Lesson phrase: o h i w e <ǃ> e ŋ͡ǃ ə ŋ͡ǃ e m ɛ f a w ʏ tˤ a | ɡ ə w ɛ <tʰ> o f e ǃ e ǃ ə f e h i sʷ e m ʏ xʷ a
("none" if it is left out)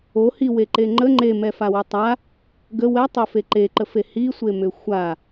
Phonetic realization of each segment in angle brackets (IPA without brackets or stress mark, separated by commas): ǃ, tˤ